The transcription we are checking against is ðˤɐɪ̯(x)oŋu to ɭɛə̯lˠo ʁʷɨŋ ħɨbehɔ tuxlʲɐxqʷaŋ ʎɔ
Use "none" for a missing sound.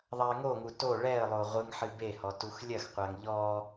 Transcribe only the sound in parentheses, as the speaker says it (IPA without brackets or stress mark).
ŋ